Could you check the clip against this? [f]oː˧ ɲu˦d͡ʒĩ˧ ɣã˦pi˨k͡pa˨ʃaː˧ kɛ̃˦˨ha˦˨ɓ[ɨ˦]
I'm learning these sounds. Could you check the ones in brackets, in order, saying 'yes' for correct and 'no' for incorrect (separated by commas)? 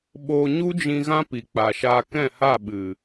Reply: no, no